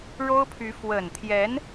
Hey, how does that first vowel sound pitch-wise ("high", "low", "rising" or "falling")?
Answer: high